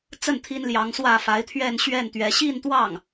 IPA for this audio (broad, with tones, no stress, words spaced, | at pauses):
t͡sə˥˩n t̪ʰi˥nljɑ˧˥ŋswä˥˩fa˧˥ɪ̯ t̪ʰɥɛ˥˧nɕɥɛ˥˩n t̪ɥɛ˧˥ ɕi˥˧nt̪wɑ˥˩ŋ